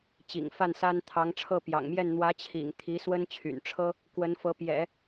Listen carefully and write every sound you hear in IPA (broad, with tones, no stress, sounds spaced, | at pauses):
t͡ɕ ḭ˨˩ ŋ f a˥˩ n s a˥ n t̪ʰ ɑ˧˥ ŋ ʈ͡ʂʰ ɤ˥˩ p j ɑ̰˨˩ ŋ m j ɛ˥˩ n n̪ w ä˧˥ t͡ɕʰ ḭ˨˩ ŋ t̪ʰ i˧˥ s w ə˥ n t͡ɕʰ y̰˨˩ n ʈ͡ʂʰ ɤ˥ | k w ə˧˥ n f ɤ˧˥ p j ɛ̰˨˩˦